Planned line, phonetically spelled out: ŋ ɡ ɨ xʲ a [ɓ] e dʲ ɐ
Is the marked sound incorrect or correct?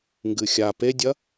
incorrect